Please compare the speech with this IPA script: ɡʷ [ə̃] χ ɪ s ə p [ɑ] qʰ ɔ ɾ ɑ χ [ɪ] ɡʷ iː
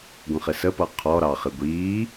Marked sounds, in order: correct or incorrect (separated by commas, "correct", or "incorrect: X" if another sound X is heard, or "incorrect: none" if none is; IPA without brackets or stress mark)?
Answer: correct, incorrect: ʌ, correct